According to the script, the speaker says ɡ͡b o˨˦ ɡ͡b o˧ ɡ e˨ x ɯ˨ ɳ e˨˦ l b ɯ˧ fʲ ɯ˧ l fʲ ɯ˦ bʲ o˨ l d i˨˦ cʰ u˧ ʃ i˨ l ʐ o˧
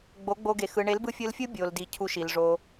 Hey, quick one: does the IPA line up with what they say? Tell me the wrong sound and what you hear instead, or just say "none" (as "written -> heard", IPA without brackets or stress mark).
none